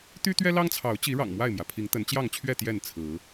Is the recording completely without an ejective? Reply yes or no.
yes